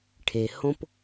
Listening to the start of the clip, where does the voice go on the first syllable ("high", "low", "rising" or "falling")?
low